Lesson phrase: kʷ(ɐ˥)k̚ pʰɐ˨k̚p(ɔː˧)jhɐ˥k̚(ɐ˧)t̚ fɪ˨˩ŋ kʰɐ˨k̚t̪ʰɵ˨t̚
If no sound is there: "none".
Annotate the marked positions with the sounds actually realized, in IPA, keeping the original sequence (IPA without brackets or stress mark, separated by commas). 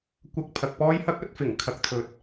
ɐ˧, ɔː˥, ɐ˨˥